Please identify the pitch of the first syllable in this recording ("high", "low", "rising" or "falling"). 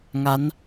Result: rising